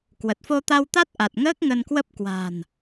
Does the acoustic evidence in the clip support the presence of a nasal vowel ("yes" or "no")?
no